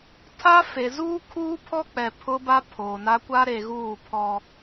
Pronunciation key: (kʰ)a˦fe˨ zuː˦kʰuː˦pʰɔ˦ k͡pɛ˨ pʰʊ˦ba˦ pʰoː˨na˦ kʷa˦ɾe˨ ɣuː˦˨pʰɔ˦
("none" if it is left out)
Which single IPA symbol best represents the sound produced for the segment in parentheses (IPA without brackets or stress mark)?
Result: tʰ